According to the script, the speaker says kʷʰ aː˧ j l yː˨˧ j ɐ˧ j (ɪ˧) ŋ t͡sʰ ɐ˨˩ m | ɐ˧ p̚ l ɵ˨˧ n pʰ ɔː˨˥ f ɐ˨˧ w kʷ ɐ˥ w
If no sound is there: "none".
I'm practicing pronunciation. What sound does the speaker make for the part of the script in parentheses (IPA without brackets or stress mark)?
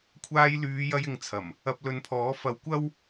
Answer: ɪ˨